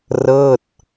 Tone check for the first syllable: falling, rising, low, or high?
falling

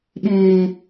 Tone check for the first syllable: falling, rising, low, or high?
high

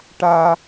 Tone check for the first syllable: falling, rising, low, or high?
high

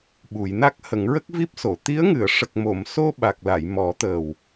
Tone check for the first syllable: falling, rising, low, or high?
low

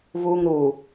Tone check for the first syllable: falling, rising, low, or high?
high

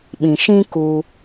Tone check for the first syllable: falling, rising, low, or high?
low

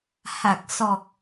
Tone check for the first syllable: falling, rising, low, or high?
low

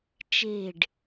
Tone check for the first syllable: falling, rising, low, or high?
falling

